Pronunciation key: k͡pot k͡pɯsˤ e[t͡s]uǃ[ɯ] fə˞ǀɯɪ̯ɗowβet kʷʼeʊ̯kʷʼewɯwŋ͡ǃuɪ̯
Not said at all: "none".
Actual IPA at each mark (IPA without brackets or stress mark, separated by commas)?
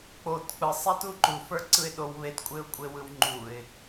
t, u